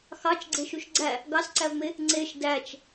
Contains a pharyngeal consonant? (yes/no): no